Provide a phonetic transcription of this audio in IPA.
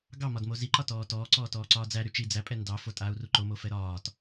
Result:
ɡ ɑ m ɒ d m o z i ǃ ɒ t ɔː t ɔː ǀ ɔː t ɔː ǀ ɒː d͡z æ ɾ y t͡ʃ i d͡z æ pʼ ɛ n d ɑ f o tʼ aː u̯ r u ǃ o m o f ɛ ɾ ɒː t

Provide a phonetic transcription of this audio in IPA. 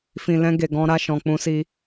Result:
f ĩ˨ l ɛ̃˧ ɡ e˨ ɡ ɔ̃˧ ɾ a˧ ʃ ɔ̃˨ k͡p ũ˧ s i˧

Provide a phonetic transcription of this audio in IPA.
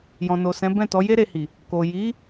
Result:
j ɔ̃˨ n o˨ s ɛ̃˨˦ b ɛ̃˦˨ t ɔ˨˦ j e˦ ɾ e˧ h i˨ | k o˨ j i˨˦

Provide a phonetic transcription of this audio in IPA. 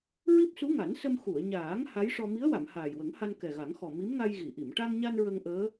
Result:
ɹ i˦˥ p̚ s u˧˥ ŋ a˨˩˦ n s ə˧ m x u˨˩˨ ə̯ ɲ aː˨˩˦ ŋ h a˧˥ j ʂ ɔ˧ m i˧˥ ə̯ w a˨˩˨ m h aː˨˩ j w ə˨˩˦ ŋ h a˧ n k ɛ˨˩ ɣ a˨˩˦ ŋ x ɔ˨˩ m i˧˥ m ŋ a˧ j ɣ i˨˩˨ ʔ i˨˩˨ m ʈ a˧ ŋ ɲ a˧ n ɹ ə˧ ŋ ʔ əː˧˥

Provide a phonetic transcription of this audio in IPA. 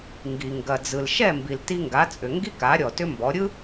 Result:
ŋ ɡ i˩ ŋ ɡ ɐ˩ d͡z ɯ˩ l ʃ ɛ˥˩ m b i˩ l t i˧ ŋ ɡ a˩˥ t͡sʼ ʏ˩ ŋ ɡ i˥ k a˩˥ ɾʲ ɔ˩ t ʏ˥ m b ɔ˩˥ ɾʲ ɯ˥

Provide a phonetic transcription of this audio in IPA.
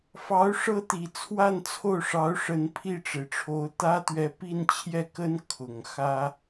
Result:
f ɑ˧˥ ʊ̯ ʂ ɤ˥ t̪ i˨˩ t͡sʰ w a˥˧ n t͡sʰ o˥˩ ʊ̯ ʂ ɑ˧˥ ʊ̯ ʂ ə˧˥ n pʰ i˥˩ ʈ͡ʂ e˩ ɪ̯ ʈ͡ʂʰ o˧˥ ʊ̯ t̪ ä˥ t̪ ɥ ɛ˧˥ p i˥˧ n t͡ɕʰ j ɛ˥˩ k ə˥ n kʰ ʊ˨˩ ŋ x ä˥

